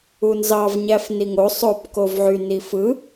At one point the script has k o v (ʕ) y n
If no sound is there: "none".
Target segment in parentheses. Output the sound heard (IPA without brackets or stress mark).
ʕ